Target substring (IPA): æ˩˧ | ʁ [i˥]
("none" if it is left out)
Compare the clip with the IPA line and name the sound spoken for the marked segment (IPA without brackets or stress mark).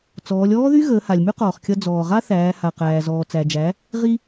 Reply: i˥